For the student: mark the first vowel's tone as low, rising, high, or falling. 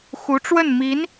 rising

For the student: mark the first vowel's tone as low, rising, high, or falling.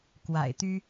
low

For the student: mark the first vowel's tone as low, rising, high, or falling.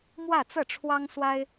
falling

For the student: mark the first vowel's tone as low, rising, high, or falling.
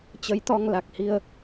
rising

